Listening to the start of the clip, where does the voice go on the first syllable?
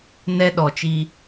high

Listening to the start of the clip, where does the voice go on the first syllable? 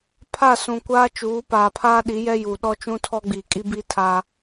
falling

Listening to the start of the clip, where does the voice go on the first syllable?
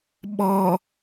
low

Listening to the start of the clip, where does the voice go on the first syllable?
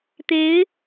rising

